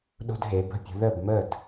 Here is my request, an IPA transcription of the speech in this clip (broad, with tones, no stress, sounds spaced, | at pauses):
ɗ o̤˧ d ɦ e˩˧ b ə̤˧ pʲ ə̤˩˧ ð ə˥˩ b m ə˥˩ d